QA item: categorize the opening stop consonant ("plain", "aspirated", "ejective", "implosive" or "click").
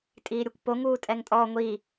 ejective